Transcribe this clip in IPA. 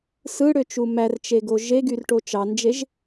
s ɯ ɽ ø t͡ʃ u m æ r t͡ʃ e ɡ o ʒ e ɡ y r ʈ o t͡ʃ ɑ n d͡ʒ e ʒ

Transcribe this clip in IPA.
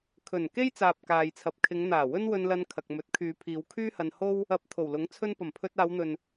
kʰ ɵ˨˩ n k e˥ j t͡s aː˨ p̚ k aː˨ j t͡sʰ ɐ˨ p̚ kʰ ɪ˨˧ ŋ n̪ aː˨˩ w ɵ˥ n w ɵ˧ n l ɐ˧ n kʰ ɐ˨ k̚ m ɵ˨˥ t̚ kʰ yː˨˧ pʰ iː˨˧ w kʰ yː˥ h ɐ˧ n h o˥ w | ɐ˨˥ p̚ t̪ʰ o˨˩ w l ʊ˨˥ ŋ t͡sʰ ɵ˧ n p ɐ˨˩ m pʰ ɵ˧ t̚ aː˨˧ w n̪ ɵ˨ n

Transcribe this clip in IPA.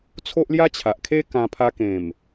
t͡sʰ o˦ ʔ l j a˦ t͡ɕʰ a˨ ʔ kʰ e˦ k ã˧ pʰ a˧ k ẽ˨˩ m

